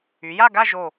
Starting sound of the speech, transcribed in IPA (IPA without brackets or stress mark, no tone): y